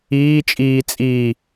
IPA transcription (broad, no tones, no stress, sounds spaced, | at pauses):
iː t͡ʃʼ iː t͡sʼ i